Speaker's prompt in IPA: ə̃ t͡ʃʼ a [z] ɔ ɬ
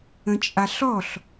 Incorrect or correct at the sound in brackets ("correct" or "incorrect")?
incorrect